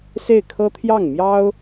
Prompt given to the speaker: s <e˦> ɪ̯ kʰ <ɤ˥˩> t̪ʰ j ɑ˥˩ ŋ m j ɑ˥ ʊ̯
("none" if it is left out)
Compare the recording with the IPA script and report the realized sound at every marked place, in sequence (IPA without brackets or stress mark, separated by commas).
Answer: e˥˩, ɤ˥